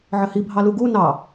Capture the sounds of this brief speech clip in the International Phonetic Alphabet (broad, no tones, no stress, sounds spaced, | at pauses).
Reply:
ʕ ɘ h i bʱ ɑ l u ɡ u n ɑ